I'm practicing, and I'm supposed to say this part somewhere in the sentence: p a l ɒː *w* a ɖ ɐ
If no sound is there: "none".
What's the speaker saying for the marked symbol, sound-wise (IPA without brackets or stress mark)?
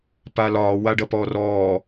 w